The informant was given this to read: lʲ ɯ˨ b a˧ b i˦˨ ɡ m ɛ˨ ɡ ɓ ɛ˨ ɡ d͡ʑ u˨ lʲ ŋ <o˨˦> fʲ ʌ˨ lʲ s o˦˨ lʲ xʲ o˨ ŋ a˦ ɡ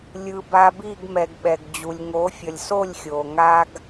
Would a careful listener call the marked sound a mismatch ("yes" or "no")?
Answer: no